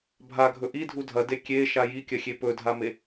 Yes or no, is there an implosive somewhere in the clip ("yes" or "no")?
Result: no